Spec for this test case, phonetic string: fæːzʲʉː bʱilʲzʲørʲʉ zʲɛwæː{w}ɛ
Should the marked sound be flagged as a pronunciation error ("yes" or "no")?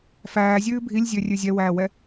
no